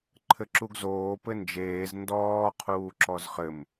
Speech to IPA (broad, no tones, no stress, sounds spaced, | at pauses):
ǃʰ ɘ ǁ u ɡ z oː p ɘ n d͡ʒ eː z n d ɔː qʰ uː ǁ ɔ z χ ɘ m